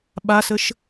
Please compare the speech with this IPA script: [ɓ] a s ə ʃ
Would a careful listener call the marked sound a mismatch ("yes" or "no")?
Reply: no